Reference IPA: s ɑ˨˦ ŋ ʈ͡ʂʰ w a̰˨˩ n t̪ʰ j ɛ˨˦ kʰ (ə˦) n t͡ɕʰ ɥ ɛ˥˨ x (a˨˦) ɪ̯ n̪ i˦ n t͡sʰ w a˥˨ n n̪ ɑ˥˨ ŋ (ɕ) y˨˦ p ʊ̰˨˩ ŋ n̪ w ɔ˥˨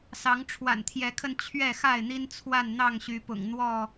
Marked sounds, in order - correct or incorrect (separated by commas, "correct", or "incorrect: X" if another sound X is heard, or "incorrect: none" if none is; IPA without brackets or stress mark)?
incorrect: ə˧, incorrect: a˥˨, correct